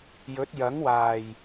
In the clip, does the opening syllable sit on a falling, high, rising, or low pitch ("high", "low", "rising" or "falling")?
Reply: rising